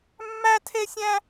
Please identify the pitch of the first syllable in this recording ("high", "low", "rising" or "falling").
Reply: high